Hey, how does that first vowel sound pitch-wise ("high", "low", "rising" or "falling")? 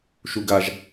high